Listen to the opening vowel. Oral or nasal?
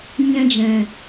nasal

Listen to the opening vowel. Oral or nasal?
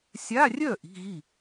oral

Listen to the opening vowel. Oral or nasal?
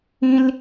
nasal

